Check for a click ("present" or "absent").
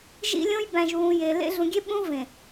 absent